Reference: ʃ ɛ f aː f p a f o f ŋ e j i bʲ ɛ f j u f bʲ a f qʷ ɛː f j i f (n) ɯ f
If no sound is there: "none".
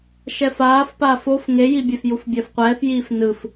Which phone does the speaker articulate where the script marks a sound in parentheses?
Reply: n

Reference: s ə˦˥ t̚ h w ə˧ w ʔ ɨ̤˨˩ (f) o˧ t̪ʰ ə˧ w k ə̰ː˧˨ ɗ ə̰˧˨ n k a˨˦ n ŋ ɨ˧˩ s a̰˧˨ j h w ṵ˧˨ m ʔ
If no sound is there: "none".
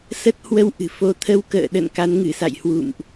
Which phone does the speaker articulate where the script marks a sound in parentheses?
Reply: f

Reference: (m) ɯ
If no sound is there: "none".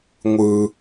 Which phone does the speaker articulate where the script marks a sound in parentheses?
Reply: ŋʷ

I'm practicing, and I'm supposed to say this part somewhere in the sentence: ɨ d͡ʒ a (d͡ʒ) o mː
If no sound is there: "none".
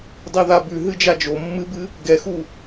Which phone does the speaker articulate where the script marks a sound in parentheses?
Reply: d͡ʒ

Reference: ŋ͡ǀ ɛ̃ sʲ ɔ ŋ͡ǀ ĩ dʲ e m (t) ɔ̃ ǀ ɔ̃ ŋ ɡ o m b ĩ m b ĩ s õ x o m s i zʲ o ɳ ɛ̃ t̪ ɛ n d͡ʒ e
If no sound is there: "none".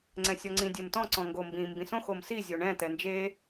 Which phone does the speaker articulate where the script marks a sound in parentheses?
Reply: t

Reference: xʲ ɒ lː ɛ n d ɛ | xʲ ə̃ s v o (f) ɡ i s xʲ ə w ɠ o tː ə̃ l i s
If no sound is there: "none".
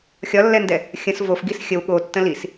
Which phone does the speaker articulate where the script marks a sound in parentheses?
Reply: f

